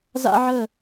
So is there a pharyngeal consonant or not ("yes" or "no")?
yes